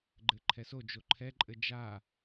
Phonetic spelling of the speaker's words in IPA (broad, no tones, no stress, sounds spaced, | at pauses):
ɡ͡ǃ ɘ ǃʰ ɛ s o d͡ʒ o ǃʰ ɛ ǃʼ ɘ d͡ʒ a